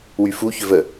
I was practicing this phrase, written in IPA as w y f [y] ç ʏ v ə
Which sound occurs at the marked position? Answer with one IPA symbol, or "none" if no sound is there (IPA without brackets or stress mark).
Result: u